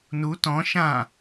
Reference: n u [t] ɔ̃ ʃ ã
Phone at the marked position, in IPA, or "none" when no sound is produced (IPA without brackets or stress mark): t